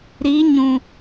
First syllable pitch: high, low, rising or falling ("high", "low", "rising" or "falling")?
rising